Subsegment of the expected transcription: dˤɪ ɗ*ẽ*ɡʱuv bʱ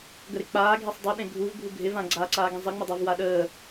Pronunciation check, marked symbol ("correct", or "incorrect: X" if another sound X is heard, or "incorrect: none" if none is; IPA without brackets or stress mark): correct